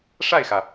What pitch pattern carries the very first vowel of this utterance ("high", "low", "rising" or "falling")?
falling